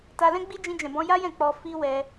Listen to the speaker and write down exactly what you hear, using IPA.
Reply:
t a˧ l ɛ̃˦ ɡ͡b i˦ d͡ʒ ĩ˧ d͡ʒ ɛ̃˨ b ɔ̃˧ j a˦ j ɛ̃˦˨ k͡p ɔ˧ f i˦ w ɛ˧

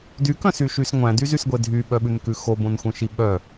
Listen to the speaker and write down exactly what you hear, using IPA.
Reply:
d y k œ̃ s y ʃ y s ŋʷ æ̃ d y z y s ɡʷ e dʱ y ɓ œ ɓ ʉ n k ʉ x o b õ n xʷ œ̃ ʃ i ɓ œ

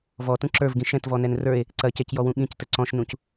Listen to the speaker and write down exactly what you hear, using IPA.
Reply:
v ɔ t ũ ǁ ə˞ v ɡ ĩ ʃ ɛ̃ t v ɔ n ɛ n r ə˞ e̯ | ǀ ɐ c ɛ c j ɔ w ũ ɠ ĩ c t ə ǀ ɔ̃ ʃ n ũ c

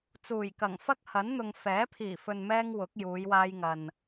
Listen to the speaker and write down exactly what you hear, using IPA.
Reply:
t͡s uː˨˩ j k ɐ˨˩ ŋ f ɐ˥ k̚ h ɐ˨˥ n n̪ ʊ˨ ŋ f ɛː˨˥ pʰ iː˨˩ f ɵ˨ n m ɛː˧ ŋ w ʊ˨˥ k̚ j uː˨˧ j w aː˧ j ŋ ɐ˨ n

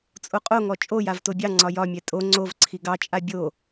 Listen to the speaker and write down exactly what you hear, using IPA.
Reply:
t͡sʼ o qʼ o ŋ ɔ t͡ʃʼ o j a v t o bʲ ɑ ŋ͡ǀ ɒ j ɒ mʲ ɛ tʼ o ŋ͡ǀ o v ǀʰ i ɡ ɑ t͡ʃʼ a bʲ o

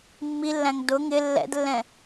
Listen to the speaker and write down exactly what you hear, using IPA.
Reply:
mː i lː æ̃ ŋ d ʊ ŋ ɪ lː ɛ̰ d lː ɛ̃

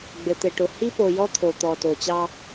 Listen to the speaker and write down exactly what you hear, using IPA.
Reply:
ɡ͡b ɘ˨ t̪ ɘ˨ ʈ ʊ˨ h i˦ p o˨ j ɔ˦ t̪ʰ o˨ t̪ ɔ˨ t o˨ t͡ɕ ɑ˦

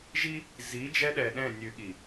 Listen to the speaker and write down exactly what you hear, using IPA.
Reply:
ʒ i˦ | z i˨˦ d͡ʒ ɛ˦ ɗ ɛ˨ ɗ ɛ̃˦˨ nʲ ʉ˨ ɠ i˨

